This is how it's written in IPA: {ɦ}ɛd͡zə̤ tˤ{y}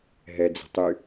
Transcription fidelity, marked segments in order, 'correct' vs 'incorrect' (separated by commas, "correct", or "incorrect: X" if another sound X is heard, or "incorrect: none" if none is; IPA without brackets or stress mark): correct, correct